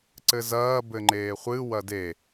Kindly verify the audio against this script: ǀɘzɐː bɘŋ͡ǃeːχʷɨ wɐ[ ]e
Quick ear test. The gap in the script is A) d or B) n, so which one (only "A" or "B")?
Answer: A